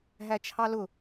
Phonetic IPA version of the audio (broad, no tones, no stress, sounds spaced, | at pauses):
ɦ æ t͡ʃʰ ɑ l ʊ